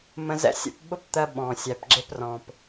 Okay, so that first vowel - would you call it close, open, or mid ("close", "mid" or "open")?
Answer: mid